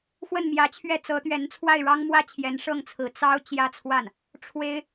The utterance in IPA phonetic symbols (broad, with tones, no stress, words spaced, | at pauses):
xwə˥˩nmjä˧˥t͡ɕʰɥɛ˥˩ t͡sɤ˧˥t̪ɥɛ˧˥nt͡sʰwa˥˩ɪ̯ ɻɑ˥ŋmwä˥t͡ɕʰjɛ˧˥n ʂɤ˥˩ŋt͡sʰɹ̩˧˥ t͡sɑ˥ʊ̯ t͡ɕjä˥˧t͡sʰwa˥˩n | ʈ͡ʂʰwe˥ɪ̯